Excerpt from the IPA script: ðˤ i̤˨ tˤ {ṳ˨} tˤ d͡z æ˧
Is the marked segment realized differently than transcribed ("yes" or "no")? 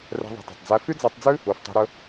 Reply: no